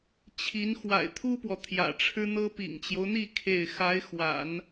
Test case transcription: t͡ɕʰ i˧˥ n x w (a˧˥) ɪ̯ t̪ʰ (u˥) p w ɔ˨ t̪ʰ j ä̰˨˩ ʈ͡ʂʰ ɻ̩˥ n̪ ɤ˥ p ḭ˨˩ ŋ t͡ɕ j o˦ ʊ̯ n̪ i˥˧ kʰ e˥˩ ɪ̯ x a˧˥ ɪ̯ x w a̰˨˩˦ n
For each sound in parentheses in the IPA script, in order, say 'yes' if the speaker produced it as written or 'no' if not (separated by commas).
no, yes